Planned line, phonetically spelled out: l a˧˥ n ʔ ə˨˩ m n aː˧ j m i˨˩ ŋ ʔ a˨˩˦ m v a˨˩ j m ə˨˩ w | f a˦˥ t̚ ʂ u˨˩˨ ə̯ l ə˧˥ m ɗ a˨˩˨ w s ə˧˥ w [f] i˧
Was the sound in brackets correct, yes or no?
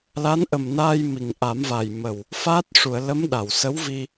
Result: no